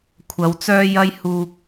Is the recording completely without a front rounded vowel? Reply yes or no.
no